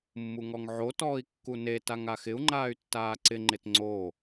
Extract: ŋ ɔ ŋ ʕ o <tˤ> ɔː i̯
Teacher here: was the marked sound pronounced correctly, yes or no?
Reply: no